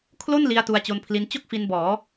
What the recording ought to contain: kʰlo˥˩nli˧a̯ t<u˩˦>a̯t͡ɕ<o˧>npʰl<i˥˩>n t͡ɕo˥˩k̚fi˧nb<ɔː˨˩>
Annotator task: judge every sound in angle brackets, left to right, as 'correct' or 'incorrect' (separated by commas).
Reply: incorrect, correct, incorrect, incorrect